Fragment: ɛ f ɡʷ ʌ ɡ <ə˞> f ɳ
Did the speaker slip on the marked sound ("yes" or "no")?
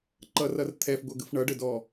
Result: yes